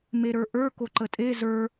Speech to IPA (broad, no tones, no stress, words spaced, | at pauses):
meɾə˞ʔə˞ koǃətʼe zə˞